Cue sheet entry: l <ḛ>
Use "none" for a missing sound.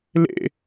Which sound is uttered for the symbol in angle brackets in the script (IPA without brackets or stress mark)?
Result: ḛ